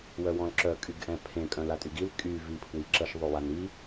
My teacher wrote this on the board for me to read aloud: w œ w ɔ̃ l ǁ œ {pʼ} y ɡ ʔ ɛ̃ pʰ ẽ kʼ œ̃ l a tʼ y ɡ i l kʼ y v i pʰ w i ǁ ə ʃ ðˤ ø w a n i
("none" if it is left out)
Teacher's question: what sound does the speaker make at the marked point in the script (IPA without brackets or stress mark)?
kʼ